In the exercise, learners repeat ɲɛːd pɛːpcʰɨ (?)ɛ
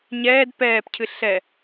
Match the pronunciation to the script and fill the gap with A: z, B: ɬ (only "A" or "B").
B